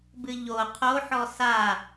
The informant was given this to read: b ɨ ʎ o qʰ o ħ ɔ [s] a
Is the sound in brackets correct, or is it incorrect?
correct